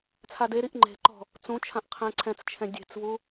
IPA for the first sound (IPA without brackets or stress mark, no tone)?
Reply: t͡sʰ